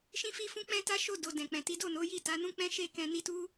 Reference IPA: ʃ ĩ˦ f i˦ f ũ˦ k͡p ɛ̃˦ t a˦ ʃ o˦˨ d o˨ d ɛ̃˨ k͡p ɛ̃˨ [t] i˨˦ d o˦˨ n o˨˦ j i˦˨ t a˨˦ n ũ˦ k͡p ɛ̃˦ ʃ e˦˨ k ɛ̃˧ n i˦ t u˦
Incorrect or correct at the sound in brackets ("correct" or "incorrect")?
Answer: correct